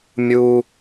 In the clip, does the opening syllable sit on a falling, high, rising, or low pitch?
high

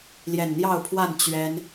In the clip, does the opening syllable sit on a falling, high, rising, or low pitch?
low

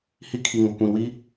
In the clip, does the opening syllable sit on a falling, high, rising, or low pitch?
high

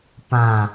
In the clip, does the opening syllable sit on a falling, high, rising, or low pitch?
low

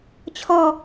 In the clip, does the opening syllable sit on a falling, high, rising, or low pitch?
falling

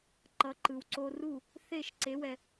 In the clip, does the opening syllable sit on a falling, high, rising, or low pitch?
rising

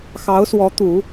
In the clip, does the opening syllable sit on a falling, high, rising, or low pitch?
rising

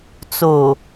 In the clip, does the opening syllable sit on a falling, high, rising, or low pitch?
low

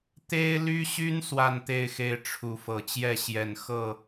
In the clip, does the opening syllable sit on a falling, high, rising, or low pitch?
high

